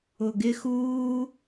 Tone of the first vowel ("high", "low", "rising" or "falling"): low